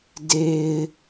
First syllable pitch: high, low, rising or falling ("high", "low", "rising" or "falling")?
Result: low